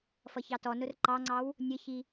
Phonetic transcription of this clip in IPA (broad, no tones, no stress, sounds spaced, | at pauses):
f ʌ ç ɑ t ɔ n ʊ r ǃ ɑ ŋ͡ǀ ɑ w | nʲ ə ç i